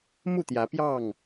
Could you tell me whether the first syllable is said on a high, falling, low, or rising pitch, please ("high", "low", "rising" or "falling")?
falling